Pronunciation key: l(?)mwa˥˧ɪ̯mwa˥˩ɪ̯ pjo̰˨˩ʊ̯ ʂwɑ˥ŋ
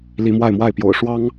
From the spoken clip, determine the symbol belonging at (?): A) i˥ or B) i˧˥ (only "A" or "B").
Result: B